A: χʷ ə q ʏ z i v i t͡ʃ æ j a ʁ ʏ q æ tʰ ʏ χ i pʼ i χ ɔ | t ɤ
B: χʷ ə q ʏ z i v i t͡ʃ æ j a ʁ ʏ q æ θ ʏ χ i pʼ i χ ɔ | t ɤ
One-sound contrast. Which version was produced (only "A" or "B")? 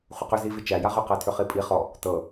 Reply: A